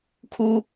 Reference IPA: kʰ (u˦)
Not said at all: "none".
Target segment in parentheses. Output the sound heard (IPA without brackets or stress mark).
u˦